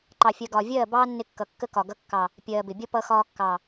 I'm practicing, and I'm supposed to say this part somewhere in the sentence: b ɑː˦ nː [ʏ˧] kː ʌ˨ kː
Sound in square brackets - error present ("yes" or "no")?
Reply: yes